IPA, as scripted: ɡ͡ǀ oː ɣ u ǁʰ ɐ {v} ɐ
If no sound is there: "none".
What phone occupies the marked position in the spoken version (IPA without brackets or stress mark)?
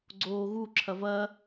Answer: v